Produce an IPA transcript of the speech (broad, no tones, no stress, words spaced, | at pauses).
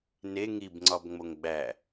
ne ŋibŋ͡ǀɒbŋ͡moŋ ɡ͡bæ